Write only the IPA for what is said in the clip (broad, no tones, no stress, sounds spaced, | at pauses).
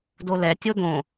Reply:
d o l ɛ tʲ o d̪ õ